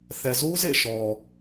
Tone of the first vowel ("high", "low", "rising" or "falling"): low